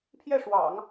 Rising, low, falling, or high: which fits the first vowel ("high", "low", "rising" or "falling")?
falling